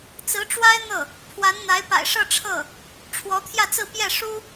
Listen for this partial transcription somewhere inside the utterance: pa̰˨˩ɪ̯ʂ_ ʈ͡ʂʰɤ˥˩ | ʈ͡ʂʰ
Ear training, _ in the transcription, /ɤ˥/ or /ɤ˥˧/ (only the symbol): ɤ˥˧